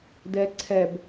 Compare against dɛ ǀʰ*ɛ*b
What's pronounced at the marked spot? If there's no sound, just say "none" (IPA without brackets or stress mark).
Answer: ɛ